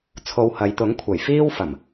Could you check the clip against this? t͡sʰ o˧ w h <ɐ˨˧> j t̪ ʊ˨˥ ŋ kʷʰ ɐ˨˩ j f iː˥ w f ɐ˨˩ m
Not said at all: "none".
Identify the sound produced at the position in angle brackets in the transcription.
ɐ˨˧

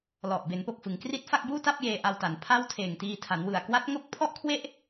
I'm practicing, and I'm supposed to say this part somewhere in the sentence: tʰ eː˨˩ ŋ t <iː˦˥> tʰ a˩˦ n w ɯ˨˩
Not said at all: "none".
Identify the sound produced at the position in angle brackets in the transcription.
iː˧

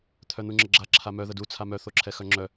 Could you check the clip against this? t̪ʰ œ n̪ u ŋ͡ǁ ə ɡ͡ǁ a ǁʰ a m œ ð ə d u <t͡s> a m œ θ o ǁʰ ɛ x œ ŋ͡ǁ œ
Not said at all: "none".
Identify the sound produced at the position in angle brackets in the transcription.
t͡sʰ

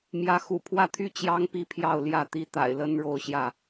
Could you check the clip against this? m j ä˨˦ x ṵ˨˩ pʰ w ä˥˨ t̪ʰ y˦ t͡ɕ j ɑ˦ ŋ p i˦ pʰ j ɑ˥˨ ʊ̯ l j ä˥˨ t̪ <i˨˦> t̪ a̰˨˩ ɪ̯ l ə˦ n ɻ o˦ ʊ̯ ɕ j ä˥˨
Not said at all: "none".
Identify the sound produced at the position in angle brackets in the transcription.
i˦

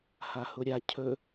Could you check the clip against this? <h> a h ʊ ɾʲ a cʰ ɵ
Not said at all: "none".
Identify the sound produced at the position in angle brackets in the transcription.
h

